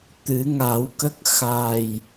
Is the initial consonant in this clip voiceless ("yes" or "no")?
yes